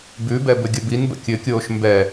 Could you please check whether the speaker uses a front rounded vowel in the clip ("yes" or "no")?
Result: no